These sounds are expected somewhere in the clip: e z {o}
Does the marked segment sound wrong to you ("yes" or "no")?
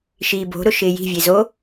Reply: no